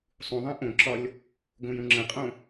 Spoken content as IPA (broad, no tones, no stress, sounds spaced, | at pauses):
sˤ ũ ðˤ ɛ̃ ʔ õ ǁ ɒ lʲ | ɡ õ j ũ ŋ͡ǁ ə̃ qʼ õ